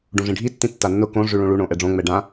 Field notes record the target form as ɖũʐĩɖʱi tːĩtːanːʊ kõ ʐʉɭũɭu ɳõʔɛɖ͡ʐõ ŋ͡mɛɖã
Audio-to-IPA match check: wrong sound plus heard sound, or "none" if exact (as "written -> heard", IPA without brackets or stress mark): none